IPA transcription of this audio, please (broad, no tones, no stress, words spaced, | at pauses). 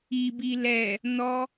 ibi lɛ | nɔ